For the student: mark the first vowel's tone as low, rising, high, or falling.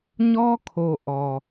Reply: high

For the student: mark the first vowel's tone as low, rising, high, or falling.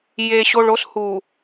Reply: low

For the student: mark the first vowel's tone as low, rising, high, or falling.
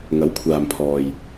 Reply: rising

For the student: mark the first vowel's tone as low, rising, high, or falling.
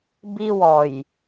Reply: high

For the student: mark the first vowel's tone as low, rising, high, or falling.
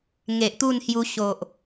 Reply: low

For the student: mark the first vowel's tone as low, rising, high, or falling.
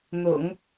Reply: low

